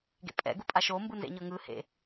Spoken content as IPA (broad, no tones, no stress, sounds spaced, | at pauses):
ɡ ḛ pʼ ɛ̰ ɡ u pʼ a ʃ o m b ɯ n z ḛ ɲ ɤ ŋ ɯ h ḛ